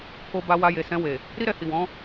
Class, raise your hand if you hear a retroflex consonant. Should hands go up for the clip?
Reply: no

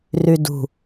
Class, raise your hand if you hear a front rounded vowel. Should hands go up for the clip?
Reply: yes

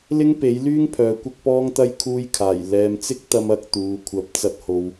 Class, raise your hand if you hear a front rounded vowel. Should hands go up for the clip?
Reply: yes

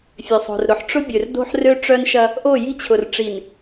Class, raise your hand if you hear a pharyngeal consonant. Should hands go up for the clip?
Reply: yes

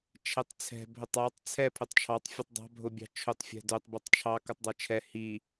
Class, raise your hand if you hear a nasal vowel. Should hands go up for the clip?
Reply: no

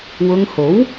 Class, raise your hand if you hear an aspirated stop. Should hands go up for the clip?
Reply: no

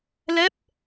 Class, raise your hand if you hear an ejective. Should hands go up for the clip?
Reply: no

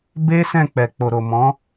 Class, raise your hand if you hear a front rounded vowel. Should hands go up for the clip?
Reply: no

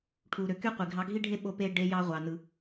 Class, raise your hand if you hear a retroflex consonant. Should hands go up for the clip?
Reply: yes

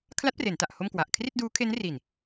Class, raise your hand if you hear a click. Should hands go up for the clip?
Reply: no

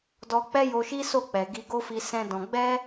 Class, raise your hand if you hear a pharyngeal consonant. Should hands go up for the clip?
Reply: no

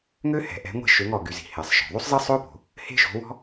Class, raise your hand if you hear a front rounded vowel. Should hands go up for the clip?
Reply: yes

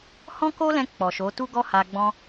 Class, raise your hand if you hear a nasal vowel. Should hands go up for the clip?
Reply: yes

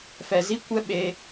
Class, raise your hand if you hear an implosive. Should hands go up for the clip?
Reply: yes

